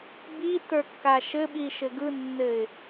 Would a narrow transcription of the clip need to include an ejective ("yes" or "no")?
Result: no